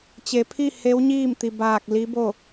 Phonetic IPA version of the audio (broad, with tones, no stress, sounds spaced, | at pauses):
t͡ɕ e˩˧ pʰ i˥˨ h e˧˥ w ɲ iː˥˨ m t̪ i˩ b aː˧˩ k̚ l i˧˥ b o˥˨